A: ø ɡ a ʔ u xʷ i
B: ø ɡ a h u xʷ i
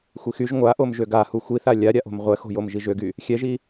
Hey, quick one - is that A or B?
B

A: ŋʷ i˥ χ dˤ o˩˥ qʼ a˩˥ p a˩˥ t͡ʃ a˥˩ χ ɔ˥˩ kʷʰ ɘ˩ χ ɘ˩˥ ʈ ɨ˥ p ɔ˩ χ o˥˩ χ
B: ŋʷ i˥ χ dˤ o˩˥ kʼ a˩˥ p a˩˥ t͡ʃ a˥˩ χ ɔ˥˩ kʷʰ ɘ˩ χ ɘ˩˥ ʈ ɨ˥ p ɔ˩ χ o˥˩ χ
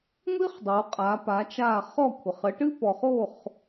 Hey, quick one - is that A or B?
A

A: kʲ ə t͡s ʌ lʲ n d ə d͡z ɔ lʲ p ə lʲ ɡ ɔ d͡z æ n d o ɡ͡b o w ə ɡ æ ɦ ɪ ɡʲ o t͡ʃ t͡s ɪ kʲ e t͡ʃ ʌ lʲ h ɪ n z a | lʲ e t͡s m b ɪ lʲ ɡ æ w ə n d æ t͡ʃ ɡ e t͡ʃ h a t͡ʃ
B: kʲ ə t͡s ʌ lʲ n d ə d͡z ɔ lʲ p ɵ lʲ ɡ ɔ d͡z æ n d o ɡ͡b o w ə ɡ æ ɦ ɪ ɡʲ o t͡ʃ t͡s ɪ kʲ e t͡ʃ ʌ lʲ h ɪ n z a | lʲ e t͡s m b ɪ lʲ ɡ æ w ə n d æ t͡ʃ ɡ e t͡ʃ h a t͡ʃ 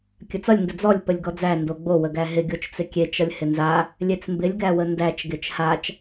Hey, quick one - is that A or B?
A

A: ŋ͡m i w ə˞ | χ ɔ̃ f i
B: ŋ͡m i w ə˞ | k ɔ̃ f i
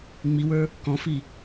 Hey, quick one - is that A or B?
B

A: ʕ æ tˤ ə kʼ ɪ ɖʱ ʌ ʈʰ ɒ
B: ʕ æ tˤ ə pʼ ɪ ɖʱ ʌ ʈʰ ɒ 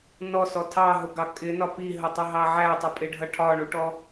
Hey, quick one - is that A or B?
B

